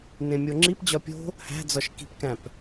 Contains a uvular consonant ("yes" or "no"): no